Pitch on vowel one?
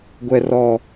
high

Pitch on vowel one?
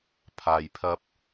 low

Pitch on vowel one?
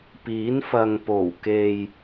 rising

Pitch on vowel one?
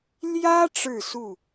high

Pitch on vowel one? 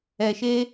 low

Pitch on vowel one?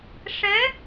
rising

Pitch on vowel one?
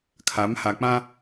rising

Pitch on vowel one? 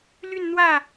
falling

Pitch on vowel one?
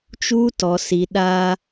high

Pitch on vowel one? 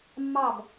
falling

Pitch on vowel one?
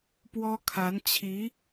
high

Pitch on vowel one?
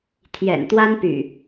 low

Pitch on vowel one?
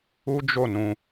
high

